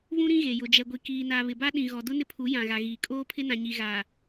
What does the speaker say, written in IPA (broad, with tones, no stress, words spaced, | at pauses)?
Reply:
βũ˦ɾĩ˦ɣe˨ jʊ˨d͡ʒɛ˨ɡʷi˨ kiː˨na˨ βɪ˨ba˦ ɗĩ˨ɣɔ˨ dʊ˦ nɪ˦pʰu˨˦ jã˨ɣa˨ɣiː˨ kʼoː˦pʰɪ˦ nã˨ɲi˨ɣaː˨